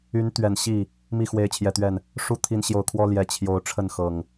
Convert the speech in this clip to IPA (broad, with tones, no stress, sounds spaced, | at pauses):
y˨˦ n t̪ ɥ ɛ˨˩ n ɕ i˥˨ | m i˥˨ x w e˨˦ ɪ̯ t͡ɕʰ j ɛ˨˩ t̪ ɥ ɛ˥˨ n | ʂ u˥˨ t̪ʰ i˨˦ n ɕ j o˨˩ ʊ̯ kʰ w ɔ˦ l j ɛ˨˩ t͡ɕʰ j o˨˦ ʊ̯ ʈ͡ʂʰ ə˥˨ n x ɤ˨˩ ŋ